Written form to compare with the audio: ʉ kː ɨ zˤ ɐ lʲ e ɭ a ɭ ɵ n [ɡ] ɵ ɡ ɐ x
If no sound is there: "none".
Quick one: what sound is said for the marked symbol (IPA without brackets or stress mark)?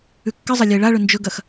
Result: d͡ʒ